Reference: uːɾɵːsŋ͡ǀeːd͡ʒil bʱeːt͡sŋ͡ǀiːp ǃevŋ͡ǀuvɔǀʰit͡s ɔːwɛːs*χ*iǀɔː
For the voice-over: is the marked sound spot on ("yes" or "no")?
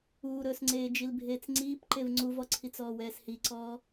no